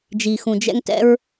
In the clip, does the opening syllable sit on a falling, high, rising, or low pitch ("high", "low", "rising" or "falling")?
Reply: low